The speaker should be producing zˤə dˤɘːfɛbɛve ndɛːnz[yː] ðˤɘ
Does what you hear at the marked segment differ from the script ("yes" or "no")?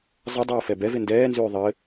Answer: no